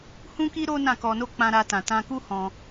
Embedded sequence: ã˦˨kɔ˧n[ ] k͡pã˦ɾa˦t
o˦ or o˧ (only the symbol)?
o˦